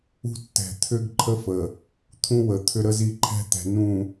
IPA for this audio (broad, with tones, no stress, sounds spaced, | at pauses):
ṳ˦ tː ɛ̤˨ t̪ʰ ʏ˦ ɡ ǃʰ ə˦ f ə˨ | t̪ʰ ũ˦ w ə˨ t̪ʰ ʏ˦ ɾ ə˦ z i˦ ǃʰ ɛ̤˦ t̪ ɛ̤˨ n ũ˨